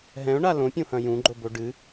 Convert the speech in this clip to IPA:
ɦɛ̃ʊ̯ ɳalõ pʲũhɐ̃jũ ɡ͡ǃoboɖɨ

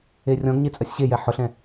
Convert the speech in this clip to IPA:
erʲɔ̃ɡɲe t͡sʼɜsʲɕejɛ ħʊɬɛ̃

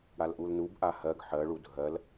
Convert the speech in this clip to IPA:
ɽalʔulnub ʔahɜɡ ħɜ ɭudʱɜl

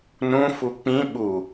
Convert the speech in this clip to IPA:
nũ fuk͡pĩ ɓu

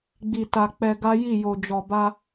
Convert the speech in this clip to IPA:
ɡ͡bi˨ta˨ k͡pɛ˧ɡa˦ji˦˨ jo˨d͡ʒɔ˨ba˧

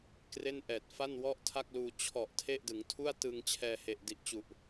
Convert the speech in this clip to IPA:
kre˥˩nʔɛː˨˩t̚ fa˥˩nwɔ˥˩ʔtʰa˥˩k̚luː˧ t͡ɕʰɔ˨˩ʔ tʰe˥˩ʔdɯ˩˦ŋ tʰu˥˩a̯tɯ˧ŋ t͡ɕʰɛː˧he˨˩ʔdi˨˩ʔ t͡ɕu˨˩ʔ

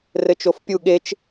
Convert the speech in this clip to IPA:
rɘt͡ʃofpʲu ɠet͡ʃ

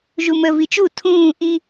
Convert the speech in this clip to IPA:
ʒumə vit͡ʃu tʰũː ʔi

